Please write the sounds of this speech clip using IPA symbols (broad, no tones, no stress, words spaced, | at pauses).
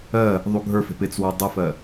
ɜ | ðˤuɡʱə˞fe̤p ɪt͡swu dˤɪfɜ